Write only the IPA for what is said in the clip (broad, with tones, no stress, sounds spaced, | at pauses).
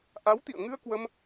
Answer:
ʔ a˨˦ w t̪ ḭ˧˨ ə̯ ŋ ɨ˧ ə̯ k w ə˧ m